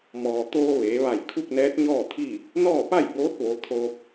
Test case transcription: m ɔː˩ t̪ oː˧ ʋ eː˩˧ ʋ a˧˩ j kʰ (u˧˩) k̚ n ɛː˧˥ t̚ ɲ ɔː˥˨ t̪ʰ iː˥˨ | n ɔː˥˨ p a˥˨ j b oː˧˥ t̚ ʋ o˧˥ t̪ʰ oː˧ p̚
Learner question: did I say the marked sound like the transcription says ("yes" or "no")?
no